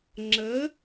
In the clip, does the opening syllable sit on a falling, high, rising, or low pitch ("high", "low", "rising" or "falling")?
rising